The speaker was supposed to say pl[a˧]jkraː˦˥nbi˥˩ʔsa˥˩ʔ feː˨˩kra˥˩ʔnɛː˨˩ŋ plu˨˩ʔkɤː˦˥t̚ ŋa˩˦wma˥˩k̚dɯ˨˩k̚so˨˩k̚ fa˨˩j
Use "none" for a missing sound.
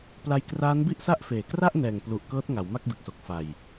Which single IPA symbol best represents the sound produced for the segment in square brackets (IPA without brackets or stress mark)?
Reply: a˧